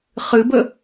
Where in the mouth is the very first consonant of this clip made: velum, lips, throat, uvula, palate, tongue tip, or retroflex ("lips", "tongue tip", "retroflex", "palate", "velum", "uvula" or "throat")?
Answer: uvula